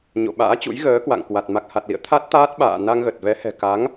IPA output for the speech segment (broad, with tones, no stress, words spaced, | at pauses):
ɲo̰˧˨ɓa̰ː˧˥t͡ɕṵ˧˥j ɣəː˨˦kwa̰˧˨ŋkwa˨˩t̚ ma˨˩k̚ha˨˩t̚lḭ˧˨ə̯ t̪ʰa˦˥t̚t̪aː˦˥t̚ɓa̰ː˧˨ na˧ŋɣə˨˩t̚vɛ˨˦hɛ̤˨˩ ka˨˦ŋ